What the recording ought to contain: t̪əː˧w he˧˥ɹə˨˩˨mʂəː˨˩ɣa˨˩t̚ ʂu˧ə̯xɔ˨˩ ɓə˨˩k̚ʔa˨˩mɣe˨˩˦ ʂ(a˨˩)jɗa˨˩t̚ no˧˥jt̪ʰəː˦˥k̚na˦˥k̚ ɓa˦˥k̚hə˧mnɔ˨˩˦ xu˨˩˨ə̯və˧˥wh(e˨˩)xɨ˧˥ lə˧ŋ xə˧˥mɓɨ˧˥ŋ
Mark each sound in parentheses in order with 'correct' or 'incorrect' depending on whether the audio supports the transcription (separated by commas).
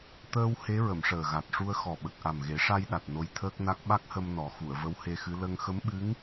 incorrect, incorrect